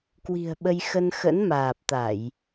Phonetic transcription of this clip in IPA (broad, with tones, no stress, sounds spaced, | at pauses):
k w i̤˨˩ ə̯ ɓ ə˧ j x ə˧ n x ə̰˧˥ n m aː˨˩ p̚ t̪ a˧˩˨ j